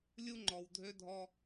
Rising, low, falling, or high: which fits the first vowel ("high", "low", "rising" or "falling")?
high